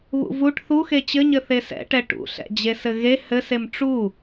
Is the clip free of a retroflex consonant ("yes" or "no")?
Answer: no